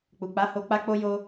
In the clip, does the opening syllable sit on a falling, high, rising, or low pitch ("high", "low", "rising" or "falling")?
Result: low